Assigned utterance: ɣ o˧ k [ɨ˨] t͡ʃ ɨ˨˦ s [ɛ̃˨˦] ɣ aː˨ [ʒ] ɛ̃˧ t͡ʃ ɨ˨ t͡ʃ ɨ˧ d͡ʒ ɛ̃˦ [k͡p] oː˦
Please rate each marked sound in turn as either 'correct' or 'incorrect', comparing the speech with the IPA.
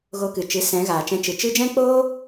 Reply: correct, correct, incorrect: t͡ʃ, correct

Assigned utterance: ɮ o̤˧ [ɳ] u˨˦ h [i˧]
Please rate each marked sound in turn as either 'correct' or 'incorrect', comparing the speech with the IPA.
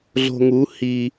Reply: incorrect: ŋ, correct

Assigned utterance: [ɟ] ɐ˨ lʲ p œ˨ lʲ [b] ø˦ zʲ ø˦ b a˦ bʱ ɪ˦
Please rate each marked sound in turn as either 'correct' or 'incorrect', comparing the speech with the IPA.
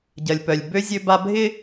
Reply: correct, correct

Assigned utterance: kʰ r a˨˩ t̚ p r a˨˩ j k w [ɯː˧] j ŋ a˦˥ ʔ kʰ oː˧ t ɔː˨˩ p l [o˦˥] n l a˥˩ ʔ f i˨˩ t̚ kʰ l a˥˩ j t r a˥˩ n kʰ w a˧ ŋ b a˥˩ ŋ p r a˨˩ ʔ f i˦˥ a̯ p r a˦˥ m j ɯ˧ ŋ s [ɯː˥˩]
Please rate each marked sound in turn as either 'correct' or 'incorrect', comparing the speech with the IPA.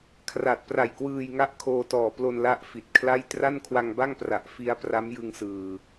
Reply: correct, incorrect: o˧, incorrect: ɯː˨˩

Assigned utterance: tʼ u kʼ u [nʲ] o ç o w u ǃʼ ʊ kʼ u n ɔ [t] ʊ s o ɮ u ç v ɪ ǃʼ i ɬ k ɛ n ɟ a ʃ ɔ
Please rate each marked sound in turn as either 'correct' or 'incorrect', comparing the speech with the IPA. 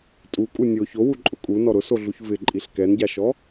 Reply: correct, incorrect: ɾ

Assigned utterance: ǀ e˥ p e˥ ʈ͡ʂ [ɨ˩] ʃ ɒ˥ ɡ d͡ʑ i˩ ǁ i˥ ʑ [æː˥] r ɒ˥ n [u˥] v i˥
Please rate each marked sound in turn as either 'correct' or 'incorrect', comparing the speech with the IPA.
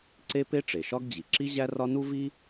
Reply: incorrect: e˩, incorrect: æ˥, correct

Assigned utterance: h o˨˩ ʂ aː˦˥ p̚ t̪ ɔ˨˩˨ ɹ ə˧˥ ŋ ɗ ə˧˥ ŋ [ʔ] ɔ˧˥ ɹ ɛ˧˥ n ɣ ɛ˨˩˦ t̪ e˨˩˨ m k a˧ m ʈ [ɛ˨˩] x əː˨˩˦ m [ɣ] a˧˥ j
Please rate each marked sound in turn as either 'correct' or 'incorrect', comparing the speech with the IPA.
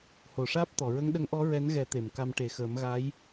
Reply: correct, incorrect: e˨˩, correct

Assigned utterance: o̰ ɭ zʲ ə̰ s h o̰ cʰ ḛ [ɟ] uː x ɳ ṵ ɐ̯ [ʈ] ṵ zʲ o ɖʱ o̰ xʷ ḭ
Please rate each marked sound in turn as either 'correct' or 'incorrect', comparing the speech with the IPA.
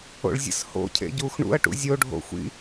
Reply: correct, correct

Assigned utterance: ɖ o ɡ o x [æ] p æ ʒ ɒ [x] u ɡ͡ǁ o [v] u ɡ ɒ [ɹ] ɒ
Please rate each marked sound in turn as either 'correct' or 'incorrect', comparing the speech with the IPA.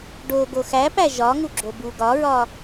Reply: correct, incorrect: ŋ, incorrect: b, correct

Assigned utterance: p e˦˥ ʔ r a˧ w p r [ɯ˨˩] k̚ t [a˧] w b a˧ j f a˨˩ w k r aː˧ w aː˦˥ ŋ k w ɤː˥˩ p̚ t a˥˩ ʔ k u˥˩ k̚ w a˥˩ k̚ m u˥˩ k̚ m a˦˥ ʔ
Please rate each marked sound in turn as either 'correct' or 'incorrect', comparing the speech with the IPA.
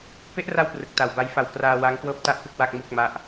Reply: correct, incorrect: a˨˩

